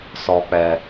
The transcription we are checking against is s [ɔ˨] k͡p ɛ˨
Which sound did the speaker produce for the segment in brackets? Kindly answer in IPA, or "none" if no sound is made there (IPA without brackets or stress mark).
ɔ˨